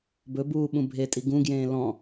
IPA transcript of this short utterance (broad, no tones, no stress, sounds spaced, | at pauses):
b ɵ b uː ɓ ũ bʱ e tʼ i ɡ ũ ɡ j ẽː l ɔ̃